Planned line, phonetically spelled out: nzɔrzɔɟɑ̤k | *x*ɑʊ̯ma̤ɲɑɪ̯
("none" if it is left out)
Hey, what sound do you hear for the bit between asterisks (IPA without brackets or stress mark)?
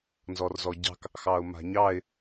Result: x